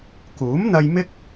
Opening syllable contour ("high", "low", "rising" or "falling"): rising